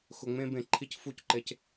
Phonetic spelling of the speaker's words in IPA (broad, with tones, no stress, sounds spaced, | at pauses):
x ʊ˨ ŋ͡m ẽ˧ b ẽ˨ ǃʰ i˧ c f u˦˨ c ǃ e˧ c